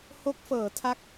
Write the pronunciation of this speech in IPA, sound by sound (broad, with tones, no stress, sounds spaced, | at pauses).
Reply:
h o˦˥ k̚ f ɤː˩˦ tʰ a˦˥ k̚